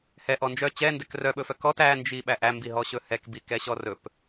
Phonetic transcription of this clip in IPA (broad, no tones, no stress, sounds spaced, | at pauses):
h ɛ ʔ ɔ n d͡ʒ œ t͡ɕ ɛ n d ɛ k r œ ɓ ɵ f œ k ɔ t æ n d͡ʒ i ɓ æ ʔ æ m b i ɦ ɔ ɕ ɵ h ɛ k b i k ɛ ɕ ɔ r ɵ p